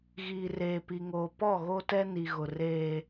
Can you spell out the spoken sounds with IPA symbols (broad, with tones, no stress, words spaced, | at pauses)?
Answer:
ɣiː˨reː˨pi˨ŋoː˨ pɔ˦˨ɣo˦tɛ˦ ni˨ɣʊ˨ reː˦